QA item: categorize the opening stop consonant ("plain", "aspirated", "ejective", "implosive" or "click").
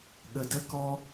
implosive